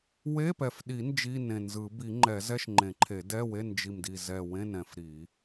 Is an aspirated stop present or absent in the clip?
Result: present